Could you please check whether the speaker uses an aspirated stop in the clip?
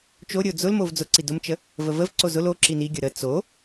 no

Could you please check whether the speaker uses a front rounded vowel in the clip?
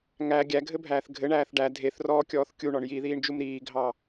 no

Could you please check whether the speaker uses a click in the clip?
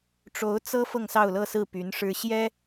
no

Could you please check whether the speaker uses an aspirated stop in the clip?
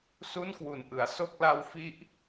no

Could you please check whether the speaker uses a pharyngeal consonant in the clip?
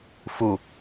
no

